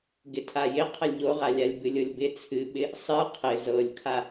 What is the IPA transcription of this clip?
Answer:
ɡ ɪ tʰ a j ɪ qʰ ə lʲ ʎ o ʁ a lʲ a lʲ b ɨ lʲ ɤ lʲ b ɪ t͡sʰ ɨ ɓ ɪ | sˤ ɨ qʰ ɪ z ɤ lʲ kʰ a

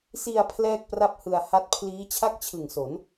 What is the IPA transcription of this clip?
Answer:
s i˧ a̯ pʰ l ɛː˥˩ k̚ p r a˥˩ p̚ h ɯ˧ a̯ h a˦˥ t̚ pʰ l iː˦˥ t͡ɕʰ a˥˩ k̚ t͡ɕʰ ɯ˨˩ ŋ s o˩˦ n

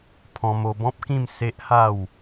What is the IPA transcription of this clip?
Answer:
pʰ ɔ̃˧ m o˧ b ɔ̃˦ p̚ k ĩ˥˧ m s e˦ ʔ h a˥˧ w

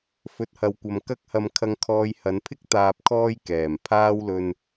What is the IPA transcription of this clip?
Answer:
f ɵ˨ t̚ h ɐ˨ w kʷ ɐ˨ m k ɐ˥ k̚ h ɐ˧ m kʰ ɐ˧ ŋ kʰ ɔː˧ j h ɐ˨˧ n pʰ ɪ˥ k̚ t̪ aː˨ p̚ kʰ ɔː˧ j k ɛː˨˩ m pʰ aː˥ w l ɵ˧ n

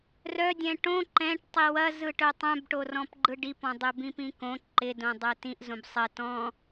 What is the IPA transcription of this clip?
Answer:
r œ dʲ ɛ̃ ʈ õ ǃ ɛ̃ ʈ tˤ i w ɐ z ɯ ʈ œ tˤ œ̃ b ʈ o r ɔ̃ p ɡ͡ǃ ɯ ɖ i p ɔ̃ dˤ œ b ĩ p ĩ k õ ǃ ɪ d õ dˤ œ t ĩ ʔ z õ b sˤ ɐ t ɔ̃

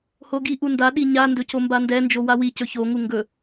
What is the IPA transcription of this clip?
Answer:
h o ɡ i ʔ u n d a ɗ i ɲ a n d ɵ c o m b a n d ɛ n d͡ʒ o w a w i c ɵ ç o ŋ u ŋ ɡ ɵ

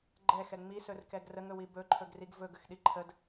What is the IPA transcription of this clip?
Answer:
ɡ͡ǃ ɛ x ɛ ŋ͡m i s ɵ r k ɛ ɡ r ə ŋ ɵ w i b ɵ ǃʰ ɵ ɡ r i ɡ v ɵ ɡ ə x ɗ i ǃʰ ə d

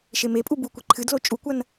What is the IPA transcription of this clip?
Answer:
ʃ e m e pʼ u b u kʷ e ǃʰ ɨ d l o t͡ʃʼ u kʷ ɐ n

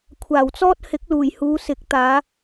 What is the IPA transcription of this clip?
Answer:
kʷʰ aː˨˩ w t͡s ɔː˥ t̚ h ɪ˨˥ k̚ l uː˨˩ j h uː˨˧ s ɪ˨˥ k̚ t̪ aː˨˧

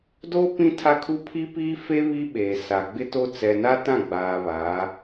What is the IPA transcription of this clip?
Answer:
d oː˦ p ĩ˦ tʰ a˦ kʰ u˦ pʰ i˦ p iː˦ f e˦ β i˦ ɓ eː˨ s a˨ ɡ͡b ɪ˦ t o˦ t͡s ɛ˨ n a˦ t ã˦˨ ɡ͡b aː˨ β aː˨˦

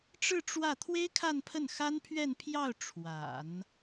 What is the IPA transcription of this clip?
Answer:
ʈ͡ʂ ɻ̩˥˧ ʈ͡ʂ w ä˥˩ t̪ʰ w e˥ ɪ̯ kʰ a˥˧ n pʰ ə˥˩ n x a˥ n pʰ ɥ ɛ˥˧ n pʰ j ɑ˥˩ ʊ̯ ʈ͡ʂʰ w a̰˨˩˦ n

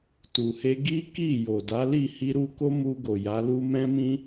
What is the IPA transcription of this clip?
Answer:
t u˨ h e˧ ɡ i˦ k i˦˨ j o˨ d a˨˦ l i˦˨ h i˧ ɾ u˧ k o˦ m u˧ ɡ o˨ j a˨˦ l u˦ m ɛ̃˦ m ĩ˦

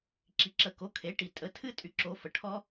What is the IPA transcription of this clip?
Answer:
ǁ i˩˥ ǁ ə˨˩˦ k o˩˥ kʰ e˩˥ ʈ i˨ tʼ ə˩˥ tʰ ɨ˦˥ tʼ y˨ ǁ o˨˩˦ f ə˨ ʈʰ ɔ˦˥

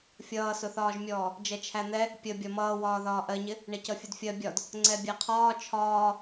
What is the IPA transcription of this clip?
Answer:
fʲ ʌː s ʊ θ ɒː ʒ mʲ ɔː | d͡ʒ ɛ t͡ʃʰ æ n̪ ɛ | pʲ ə bʲ ɒ m ʌː w ɒː ð ɒː ʔ ɜ ɲ ɪ | ɳ ɛ c ʌ fʲ ʌ d fʲ ɜ bʲ ɒ d | ŋ͡ǀ ɛ bʲ æ qʰ ɒː t͡ʃʰ ɒː

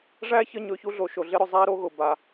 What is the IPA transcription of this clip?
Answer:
ʐ æ˥ ç ə˦ ɲ ɵ˨ ç u˥ ɮ o˨ ʃ o˨ ɮ ɪ˥ ɾ ʊ˩ zˤ æ˥ ɾ o˥ ɣ ʊ˩ b a˨

